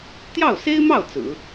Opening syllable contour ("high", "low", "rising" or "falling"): falling